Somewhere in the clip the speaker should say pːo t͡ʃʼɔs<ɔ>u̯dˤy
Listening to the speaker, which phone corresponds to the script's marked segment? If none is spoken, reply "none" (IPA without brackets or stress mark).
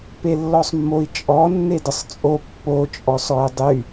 ɔ